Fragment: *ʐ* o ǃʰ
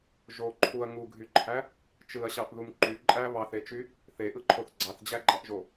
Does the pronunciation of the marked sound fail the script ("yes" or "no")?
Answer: yes